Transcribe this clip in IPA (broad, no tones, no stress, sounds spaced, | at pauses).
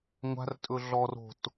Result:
ŋʷ a̤ r tʼ ɵ ɮ ɔ r o̤ t